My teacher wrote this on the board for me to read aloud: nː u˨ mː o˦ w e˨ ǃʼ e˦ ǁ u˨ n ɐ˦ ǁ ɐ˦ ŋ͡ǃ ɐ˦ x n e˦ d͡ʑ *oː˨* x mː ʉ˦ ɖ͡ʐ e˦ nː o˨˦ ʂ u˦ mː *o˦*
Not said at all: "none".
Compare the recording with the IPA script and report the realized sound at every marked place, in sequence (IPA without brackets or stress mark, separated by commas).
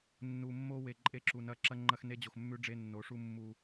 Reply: o˨, u˦